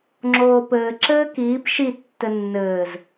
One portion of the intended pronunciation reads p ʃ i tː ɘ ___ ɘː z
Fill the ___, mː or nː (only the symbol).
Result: nː